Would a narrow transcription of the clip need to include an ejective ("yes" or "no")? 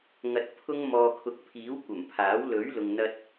no